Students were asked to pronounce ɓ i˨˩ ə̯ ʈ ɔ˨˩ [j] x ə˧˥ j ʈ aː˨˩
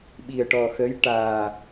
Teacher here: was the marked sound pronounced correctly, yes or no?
no